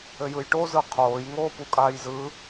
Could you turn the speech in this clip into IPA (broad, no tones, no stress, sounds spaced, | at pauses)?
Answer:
ɘ j ɯ j ʈ o z ɯ qʰ oː j ŋ oː p u kʼ aː j z ɯ